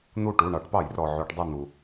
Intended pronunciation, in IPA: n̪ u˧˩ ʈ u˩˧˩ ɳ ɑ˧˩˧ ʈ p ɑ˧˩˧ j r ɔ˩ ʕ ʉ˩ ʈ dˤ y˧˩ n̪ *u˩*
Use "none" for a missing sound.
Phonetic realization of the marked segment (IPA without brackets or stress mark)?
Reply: u˩